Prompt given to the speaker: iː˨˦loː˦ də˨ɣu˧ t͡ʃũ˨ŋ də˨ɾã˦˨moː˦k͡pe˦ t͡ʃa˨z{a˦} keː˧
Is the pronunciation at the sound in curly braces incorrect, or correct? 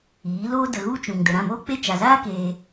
incorrect